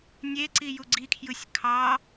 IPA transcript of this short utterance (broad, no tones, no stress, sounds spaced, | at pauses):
nʲ e ǀ i j u ɡ͡ǀ i kʰ j ɯ sʲ kʰ ɑ